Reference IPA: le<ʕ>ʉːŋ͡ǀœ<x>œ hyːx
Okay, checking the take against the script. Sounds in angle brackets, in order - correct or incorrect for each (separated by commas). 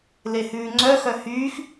incorrect, correct